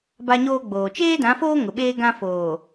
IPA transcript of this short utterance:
ba˦ɲoː˦ɡ͡boː˨ t͡ʃeː˦dã˨˦foː˦ ŋʊ˨ɓeː˦ɡã˦ foː˨

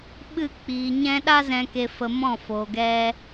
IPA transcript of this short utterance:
ɓɨ˦˨k͡piː˨ɲɛ̃˦ ɗa˦zɛ̃˧ke˧ fə˧mɔ̃˦˨ fo˨ɡɛ˧

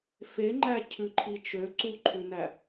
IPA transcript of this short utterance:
feŋ͡ǃæ cʰʉǃʰit͡ʃø ǀuǃʰʉnæ

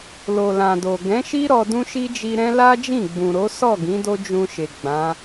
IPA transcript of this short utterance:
lo˨lã˨do˨ ɡɛ̃˨˦ʃi˦ɾɔ˧ dũ˦ʃi˦d͡ʒi˧ɾɛ̃˦ la˦d͡ʒĩ˦˨ɡ͡bũ˨ɾo˨˦ sɔ˦˨ ɡĩ˨˦do˦ d͡ʒũ˧ʃe˨ ɡ͡bã˨˦

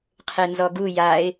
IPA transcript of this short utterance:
qʰenzɔɡu jaɪ̯

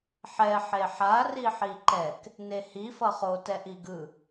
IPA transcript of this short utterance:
ħɛ ħeħa riħiǃɛk | nehi fʌχo tɛʔiɡɯ

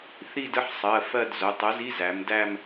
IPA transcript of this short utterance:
θi˥˧d ə˧˥˧ħsˤɜ˩˧˩ fɜ˥˧dzʊ˩˧˩ tˤə˨˥zi˧˥˧z æ˩˧mdæ˥˧m

